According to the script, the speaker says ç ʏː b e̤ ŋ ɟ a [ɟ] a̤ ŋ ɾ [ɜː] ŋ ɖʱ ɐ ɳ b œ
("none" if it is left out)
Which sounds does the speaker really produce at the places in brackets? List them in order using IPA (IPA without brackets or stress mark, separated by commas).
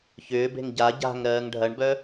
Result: ɟ, ɜː